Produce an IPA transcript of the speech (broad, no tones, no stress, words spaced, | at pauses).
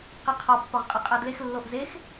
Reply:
qiqʰɒ pːɒʁqʼiqʼædlex lːoʔzex